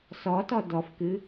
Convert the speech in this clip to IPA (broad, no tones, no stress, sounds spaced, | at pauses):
s ɔ t ɔ d ɔ f k ɨ